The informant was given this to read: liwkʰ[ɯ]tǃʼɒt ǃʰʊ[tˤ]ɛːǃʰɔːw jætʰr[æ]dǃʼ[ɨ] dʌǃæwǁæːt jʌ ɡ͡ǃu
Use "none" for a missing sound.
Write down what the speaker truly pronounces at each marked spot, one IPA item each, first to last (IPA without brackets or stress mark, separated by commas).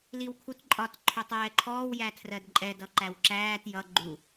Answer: u, tˤ, ɜ, ɛ